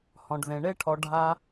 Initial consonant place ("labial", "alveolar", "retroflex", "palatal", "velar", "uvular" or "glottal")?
glottal